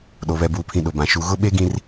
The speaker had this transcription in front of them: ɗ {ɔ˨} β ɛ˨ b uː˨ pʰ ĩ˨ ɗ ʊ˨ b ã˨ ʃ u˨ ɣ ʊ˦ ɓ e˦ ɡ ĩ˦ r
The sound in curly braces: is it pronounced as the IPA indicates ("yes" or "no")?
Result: no